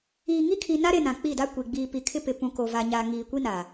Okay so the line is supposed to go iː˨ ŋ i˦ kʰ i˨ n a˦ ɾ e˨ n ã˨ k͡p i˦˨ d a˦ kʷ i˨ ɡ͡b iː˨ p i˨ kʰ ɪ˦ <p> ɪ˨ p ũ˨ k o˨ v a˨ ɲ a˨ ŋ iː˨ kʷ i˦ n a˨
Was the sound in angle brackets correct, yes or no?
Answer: yes